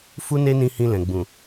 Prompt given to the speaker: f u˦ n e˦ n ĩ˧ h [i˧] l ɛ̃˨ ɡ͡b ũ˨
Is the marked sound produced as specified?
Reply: no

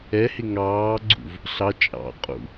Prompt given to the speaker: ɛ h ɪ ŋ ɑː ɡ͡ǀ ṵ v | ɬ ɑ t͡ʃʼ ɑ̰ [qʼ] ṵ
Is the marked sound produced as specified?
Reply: yes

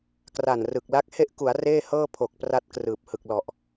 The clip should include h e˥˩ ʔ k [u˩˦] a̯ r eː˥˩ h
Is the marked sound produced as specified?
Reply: yes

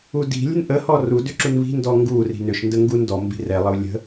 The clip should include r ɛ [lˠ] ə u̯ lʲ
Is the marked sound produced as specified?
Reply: yes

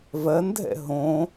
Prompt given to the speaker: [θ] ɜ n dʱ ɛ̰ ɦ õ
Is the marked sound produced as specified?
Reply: no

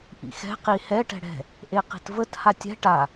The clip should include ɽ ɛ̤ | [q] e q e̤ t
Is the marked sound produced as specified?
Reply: no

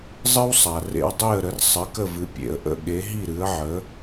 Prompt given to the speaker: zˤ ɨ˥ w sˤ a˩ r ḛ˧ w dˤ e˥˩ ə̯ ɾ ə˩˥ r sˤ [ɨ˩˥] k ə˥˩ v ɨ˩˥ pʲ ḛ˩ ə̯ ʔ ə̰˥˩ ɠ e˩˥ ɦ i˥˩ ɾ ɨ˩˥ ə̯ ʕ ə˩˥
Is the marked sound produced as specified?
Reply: yes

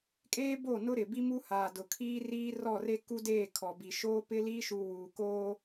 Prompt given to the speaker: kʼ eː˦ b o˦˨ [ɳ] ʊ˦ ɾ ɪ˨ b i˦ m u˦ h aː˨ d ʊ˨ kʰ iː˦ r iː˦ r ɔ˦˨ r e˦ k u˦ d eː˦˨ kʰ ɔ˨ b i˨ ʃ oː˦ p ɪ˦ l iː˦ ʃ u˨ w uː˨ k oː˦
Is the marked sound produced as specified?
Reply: no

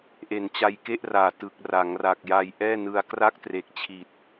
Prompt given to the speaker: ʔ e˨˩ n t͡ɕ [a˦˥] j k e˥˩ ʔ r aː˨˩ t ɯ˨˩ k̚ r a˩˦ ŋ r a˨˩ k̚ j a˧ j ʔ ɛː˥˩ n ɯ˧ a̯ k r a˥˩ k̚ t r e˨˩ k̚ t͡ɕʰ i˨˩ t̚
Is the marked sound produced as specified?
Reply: no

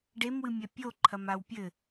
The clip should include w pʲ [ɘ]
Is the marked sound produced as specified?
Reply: yes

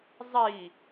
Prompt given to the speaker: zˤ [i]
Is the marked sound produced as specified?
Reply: yes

